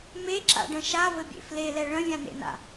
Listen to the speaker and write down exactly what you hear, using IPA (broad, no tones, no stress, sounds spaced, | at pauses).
m e ǁ a̰ ɖ ə̃ ʃ a v ɘ bʲ ḛ f l e l ɛ ɭ ə̃ vʲ ã n ḛ n a̰